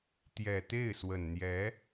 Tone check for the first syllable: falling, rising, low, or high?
low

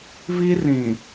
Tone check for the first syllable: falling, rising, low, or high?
high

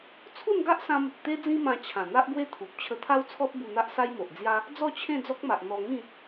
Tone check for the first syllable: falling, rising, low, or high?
falling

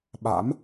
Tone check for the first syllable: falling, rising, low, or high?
rising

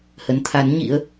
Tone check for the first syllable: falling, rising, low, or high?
rising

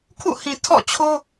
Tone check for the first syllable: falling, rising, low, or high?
falling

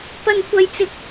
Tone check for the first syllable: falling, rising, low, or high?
high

